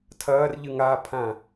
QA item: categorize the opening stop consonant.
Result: aspirated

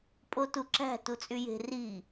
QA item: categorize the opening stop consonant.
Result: ejective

